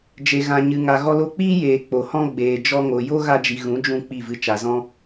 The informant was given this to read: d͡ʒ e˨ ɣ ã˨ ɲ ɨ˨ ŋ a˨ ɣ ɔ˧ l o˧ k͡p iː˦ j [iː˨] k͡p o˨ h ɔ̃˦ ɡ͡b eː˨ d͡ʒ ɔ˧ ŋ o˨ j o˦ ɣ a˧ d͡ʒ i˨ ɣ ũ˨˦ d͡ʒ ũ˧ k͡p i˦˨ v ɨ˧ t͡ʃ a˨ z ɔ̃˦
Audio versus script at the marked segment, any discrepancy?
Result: yes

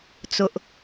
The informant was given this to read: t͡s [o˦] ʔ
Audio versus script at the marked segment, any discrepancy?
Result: yes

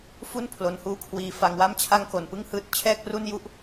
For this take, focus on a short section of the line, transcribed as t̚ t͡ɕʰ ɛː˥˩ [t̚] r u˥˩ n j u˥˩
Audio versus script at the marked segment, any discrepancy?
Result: yes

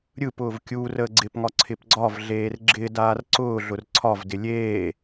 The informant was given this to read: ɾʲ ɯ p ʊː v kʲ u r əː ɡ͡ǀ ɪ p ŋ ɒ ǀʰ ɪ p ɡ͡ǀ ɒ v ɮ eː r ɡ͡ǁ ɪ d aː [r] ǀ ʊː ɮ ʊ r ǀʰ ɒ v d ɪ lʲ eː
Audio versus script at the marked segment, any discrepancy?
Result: no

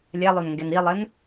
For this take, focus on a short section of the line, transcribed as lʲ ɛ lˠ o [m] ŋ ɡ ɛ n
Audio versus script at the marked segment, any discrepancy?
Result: yes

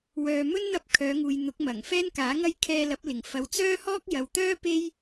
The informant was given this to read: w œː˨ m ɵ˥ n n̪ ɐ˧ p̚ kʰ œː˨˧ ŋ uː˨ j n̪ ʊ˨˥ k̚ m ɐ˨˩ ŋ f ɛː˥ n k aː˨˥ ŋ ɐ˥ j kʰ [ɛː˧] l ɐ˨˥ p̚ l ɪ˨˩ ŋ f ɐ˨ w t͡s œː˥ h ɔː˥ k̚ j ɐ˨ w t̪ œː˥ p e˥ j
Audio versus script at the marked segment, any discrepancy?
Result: no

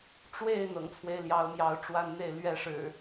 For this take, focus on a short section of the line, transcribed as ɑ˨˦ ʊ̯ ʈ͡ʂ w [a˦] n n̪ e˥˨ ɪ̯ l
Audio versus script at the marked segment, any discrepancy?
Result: no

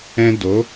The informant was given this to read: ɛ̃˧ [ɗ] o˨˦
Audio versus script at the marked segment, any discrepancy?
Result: yes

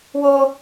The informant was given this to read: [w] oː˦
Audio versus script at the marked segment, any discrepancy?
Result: no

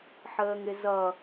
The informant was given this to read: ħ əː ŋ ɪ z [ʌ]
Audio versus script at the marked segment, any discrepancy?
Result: no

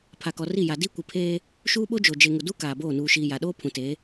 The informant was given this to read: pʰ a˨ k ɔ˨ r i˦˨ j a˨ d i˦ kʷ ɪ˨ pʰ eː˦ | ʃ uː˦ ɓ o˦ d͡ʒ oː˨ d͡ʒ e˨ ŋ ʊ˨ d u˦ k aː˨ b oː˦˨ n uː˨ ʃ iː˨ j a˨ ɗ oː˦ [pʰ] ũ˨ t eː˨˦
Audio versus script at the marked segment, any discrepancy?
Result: no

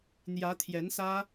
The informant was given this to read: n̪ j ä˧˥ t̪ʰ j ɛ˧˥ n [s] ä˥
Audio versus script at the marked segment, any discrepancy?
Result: no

